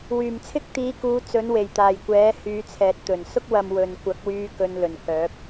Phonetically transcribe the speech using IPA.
wyː˨˩mt͡sʰɪ˥k̚t̪iː˨˧kuː˨˧ t͡sɵ˨˥nwe˨˩jt̪aː˨˩jkʷɛː˨˥ hyː˨˧t͡sʰɛː˨t̚t̪ɵ˨˩n sʊ˥k̚wɐ˨m wɵ˨nkʷɐ˨˥k̚wyː˧ kɵ˧nlɵ˨˩n kœː˨˥p̚

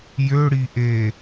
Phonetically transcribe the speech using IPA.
jøɽiʔe

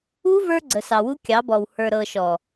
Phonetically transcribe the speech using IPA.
u˦ və˞˦ɡ͡ǀə˨sɑ˨ wu˦kʲɑ˨˦bɔ˨w hə˞˨ɾɤ˨ʃɔ˨

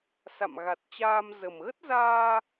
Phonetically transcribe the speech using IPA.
sa̰˧˨mɣa˨˩t̚t͡ɕaː˧m zə˨˩mɣə˦˥t̚zaː˧

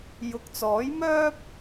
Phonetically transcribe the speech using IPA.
jʊ˨k̚t͡sɔː˨˥jmœː˥p̚

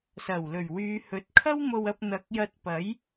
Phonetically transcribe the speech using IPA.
sɐ˨˩wlɵ˨˩ɥwyː˨˧ hɵ˨˥t̚kʰɐ˥wmo˧wɐ˧p̚ n̪ɐ˨˥k̚jɐ˧t̚pɐ˨˥j

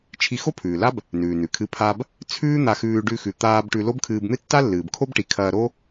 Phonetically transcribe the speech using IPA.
t͡ʃʰi˧xo˥pʰʉː˩la˥b | nʉː˩nʉ˩kʰɨ˧ pʰa˧b | t͡sʰʉː˥ n̪a˧xʉː˧ ɖʉ˧xʉ˩t̪aː˧b ʈʉ˧lo˥bkʰɨː˧b n̪ɨ˥tːa˥lːɨː˩b kʰo˥bʈi˩ kʰɐː˧ɾo˥

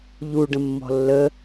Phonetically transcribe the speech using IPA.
ʎu ɖə̃mːɔ̤lːə

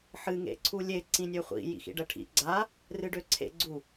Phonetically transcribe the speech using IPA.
ħɨ ŋḛǀʰulʲe ǀĩnʲøχʷḭ jḭxḭɖɜʈʰḭ ɡ͡ǀa | rɨɖøǀʰḛ ɡ͡ǀu

